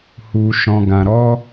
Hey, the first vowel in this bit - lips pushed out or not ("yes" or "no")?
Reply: yes